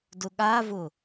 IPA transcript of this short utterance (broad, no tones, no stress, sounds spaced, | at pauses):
d ʊ ɠ a v ʊ